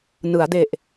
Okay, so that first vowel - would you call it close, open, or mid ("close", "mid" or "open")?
close